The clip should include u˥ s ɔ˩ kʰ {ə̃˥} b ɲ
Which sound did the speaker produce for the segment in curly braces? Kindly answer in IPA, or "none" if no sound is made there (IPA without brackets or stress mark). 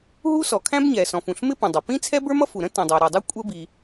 æ̃˥